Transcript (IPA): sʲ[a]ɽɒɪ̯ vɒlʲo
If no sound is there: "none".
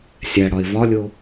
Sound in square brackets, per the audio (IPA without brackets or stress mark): æ